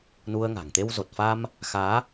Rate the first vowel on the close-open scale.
close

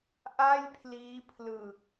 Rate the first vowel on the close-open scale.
open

